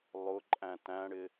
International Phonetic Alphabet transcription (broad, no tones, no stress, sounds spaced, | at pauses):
lˠ ʊ ǃʼ æ̃ t æ̃ ɽ ɪ